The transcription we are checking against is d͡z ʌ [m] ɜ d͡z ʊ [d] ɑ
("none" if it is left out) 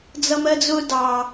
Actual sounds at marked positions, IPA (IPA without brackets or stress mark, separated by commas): m, d